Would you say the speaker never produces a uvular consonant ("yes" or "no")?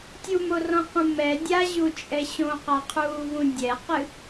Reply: no